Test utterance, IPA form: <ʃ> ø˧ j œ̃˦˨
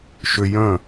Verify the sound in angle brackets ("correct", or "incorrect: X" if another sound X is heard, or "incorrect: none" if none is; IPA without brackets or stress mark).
correct